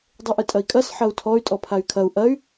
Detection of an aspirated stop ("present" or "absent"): present